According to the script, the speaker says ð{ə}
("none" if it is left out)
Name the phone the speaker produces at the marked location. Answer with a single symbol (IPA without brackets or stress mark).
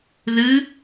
ɨ